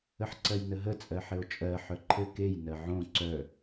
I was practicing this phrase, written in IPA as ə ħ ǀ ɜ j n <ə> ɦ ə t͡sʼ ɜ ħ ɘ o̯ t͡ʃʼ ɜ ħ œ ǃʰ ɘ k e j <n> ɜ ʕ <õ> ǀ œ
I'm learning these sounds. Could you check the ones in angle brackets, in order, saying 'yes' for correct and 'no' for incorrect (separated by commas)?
yes, yes, yes